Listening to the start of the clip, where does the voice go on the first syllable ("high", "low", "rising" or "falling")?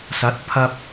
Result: rising